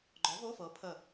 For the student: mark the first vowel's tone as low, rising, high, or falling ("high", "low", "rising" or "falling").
rising